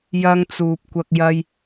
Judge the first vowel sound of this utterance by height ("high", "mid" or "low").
low